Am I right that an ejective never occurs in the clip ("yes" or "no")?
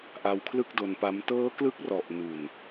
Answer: yes